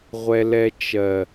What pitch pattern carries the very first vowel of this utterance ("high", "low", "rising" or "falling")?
high